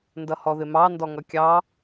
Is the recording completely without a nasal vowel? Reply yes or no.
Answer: yes